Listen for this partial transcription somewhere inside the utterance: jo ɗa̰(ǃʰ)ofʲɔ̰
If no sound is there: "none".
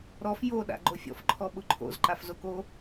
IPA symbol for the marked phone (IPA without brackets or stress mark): ɡ͡ǃ